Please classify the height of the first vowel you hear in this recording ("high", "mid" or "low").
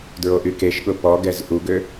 mid